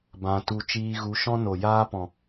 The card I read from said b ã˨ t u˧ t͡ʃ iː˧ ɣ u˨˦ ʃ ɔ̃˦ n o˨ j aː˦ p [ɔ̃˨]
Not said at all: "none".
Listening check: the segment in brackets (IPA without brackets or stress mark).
ɔ̃˨